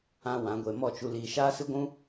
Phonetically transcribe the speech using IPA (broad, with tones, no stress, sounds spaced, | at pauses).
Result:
ã˦ w ã˨˦ ɡʷ e˧ m ɔ˦˨ t͡ʃ u˧ l iː˧ ʃ aː˦ s ɨ˦ ɡʷ ũ˦